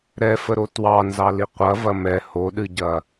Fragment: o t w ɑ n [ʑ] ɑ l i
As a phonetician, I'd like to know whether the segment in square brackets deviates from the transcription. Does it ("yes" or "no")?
yes